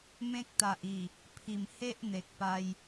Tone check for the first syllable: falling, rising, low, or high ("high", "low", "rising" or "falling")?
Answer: high